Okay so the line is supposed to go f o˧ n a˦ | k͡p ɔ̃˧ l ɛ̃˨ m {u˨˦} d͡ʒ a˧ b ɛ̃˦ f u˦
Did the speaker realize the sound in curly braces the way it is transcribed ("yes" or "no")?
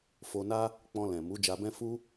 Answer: yes